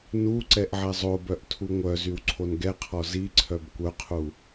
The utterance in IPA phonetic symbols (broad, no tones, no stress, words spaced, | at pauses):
nuǀɛʔ ʕɛzˤobœʔ tʰuŋʷœzyw ǀʰonɡɛqʰɔ ziǀʰœb kʷœqʰu